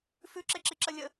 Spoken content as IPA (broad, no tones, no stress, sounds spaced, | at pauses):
f ʉ ǁ e ǁ i ǁ ə lʲ ə